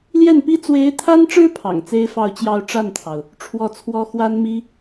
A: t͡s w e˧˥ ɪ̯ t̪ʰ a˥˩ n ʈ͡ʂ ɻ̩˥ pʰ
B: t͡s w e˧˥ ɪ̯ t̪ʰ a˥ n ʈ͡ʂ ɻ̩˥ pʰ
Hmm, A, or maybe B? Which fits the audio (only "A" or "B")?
B